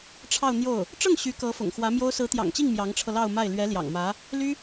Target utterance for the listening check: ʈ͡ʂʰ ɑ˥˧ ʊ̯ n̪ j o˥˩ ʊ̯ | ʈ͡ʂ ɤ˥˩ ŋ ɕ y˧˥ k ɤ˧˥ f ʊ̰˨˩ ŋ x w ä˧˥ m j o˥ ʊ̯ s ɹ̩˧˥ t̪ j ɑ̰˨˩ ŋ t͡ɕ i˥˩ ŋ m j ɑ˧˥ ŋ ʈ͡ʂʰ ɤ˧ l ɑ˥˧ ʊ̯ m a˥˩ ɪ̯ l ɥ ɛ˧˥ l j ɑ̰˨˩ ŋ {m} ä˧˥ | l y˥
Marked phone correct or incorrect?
correct